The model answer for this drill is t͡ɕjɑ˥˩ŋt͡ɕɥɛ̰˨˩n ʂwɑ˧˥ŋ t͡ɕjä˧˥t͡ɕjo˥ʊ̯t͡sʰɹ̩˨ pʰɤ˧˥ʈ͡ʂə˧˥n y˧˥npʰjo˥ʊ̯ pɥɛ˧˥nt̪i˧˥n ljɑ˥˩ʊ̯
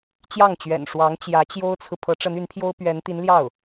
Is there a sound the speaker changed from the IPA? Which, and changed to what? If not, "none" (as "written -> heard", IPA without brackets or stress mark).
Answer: none